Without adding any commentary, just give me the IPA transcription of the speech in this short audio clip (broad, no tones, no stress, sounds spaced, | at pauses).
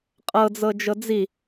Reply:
qʼ ɤ d͡z ɤ d͡ʒ ɤ d͡z i